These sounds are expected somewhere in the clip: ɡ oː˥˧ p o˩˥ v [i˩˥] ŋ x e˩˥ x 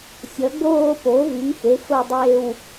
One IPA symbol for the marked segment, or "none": i˩˥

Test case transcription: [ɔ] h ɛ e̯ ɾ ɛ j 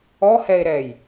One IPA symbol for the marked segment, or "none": ɔ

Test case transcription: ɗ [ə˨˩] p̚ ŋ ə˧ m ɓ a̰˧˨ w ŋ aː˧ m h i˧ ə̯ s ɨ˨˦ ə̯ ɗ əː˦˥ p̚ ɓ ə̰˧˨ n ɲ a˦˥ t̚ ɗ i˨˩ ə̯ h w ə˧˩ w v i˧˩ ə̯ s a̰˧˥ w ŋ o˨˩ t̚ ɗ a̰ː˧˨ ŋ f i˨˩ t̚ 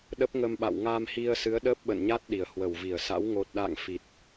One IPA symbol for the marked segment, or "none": ə˦˥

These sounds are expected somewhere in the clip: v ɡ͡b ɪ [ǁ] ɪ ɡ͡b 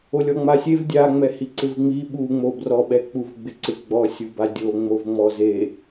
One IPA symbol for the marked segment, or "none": ǀ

